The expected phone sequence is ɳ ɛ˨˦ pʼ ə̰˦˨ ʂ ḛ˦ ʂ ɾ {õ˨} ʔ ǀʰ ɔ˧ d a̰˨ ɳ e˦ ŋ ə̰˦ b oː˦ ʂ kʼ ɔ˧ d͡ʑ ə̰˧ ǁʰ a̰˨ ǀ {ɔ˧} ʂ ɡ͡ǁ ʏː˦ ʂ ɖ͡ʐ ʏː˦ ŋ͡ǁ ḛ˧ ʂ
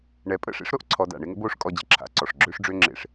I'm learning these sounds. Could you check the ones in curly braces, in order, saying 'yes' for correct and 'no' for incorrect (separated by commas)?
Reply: no, no